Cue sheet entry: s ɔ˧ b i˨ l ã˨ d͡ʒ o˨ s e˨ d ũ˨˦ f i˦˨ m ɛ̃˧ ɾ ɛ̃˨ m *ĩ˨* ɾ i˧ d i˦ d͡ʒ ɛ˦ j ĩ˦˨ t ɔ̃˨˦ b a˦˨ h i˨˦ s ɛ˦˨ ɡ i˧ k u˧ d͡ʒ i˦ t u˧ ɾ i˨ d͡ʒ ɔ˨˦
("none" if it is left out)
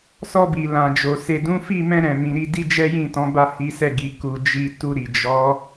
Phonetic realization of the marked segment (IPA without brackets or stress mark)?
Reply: ĩ˨